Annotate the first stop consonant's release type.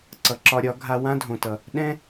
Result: click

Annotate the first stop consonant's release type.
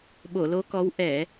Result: implosive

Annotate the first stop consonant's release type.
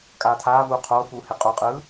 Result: ejective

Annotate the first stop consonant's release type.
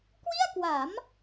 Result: plain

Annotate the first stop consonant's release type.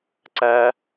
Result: click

